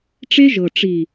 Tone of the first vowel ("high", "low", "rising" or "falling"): high